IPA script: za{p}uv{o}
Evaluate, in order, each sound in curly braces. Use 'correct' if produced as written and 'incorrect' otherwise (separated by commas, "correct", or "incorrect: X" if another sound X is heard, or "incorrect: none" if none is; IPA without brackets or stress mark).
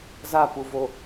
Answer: correct, correct